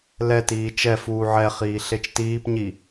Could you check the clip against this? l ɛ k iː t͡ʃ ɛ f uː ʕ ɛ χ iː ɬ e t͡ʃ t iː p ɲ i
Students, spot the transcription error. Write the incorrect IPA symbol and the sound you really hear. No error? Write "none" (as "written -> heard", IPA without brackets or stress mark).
k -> t